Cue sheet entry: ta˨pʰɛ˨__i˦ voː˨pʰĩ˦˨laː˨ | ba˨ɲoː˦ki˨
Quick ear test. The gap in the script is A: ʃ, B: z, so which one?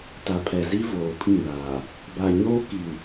B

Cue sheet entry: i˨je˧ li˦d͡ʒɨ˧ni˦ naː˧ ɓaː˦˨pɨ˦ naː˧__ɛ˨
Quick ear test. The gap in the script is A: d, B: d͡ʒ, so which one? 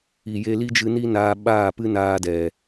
A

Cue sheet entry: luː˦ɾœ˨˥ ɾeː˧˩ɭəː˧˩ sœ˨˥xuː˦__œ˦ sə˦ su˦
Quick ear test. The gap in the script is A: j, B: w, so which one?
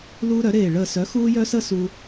A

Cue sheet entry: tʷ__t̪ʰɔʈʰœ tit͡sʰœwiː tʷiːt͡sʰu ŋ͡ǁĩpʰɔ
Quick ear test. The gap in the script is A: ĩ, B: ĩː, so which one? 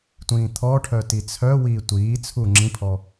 B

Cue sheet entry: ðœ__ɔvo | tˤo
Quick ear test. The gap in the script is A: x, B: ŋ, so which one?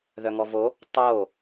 B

